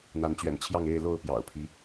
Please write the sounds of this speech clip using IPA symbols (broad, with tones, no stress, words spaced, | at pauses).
n̪a˨˦nt͡ɕɥɛ̰˨˩nt͡ɕʰjɑ˥˨ŋ e˥˨ɪ̯ lo˥˨ʊ̯pjɑ̰˨˩ʊ̯pʰi˦